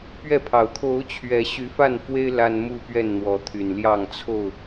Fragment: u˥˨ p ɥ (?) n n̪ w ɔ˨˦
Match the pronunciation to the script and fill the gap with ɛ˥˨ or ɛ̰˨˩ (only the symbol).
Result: ɛ˥˨